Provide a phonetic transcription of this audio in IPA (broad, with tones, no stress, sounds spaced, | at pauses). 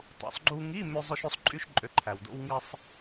tˤ ṵ˩˧ sˤ ɡ͡ǃ u˧ ŋ i˧˥˧ m ø˧ zˤ ø˧ ʃ ø˧ sˤ ǃʼ y˧ ʃ ǃʼ ø˩˥ ǃʰ æ˩ w d o̰˧ w ŋ i˧ sˤ